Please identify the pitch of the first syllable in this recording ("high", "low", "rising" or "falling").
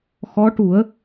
rising